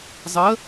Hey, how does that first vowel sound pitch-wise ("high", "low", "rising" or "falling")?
rising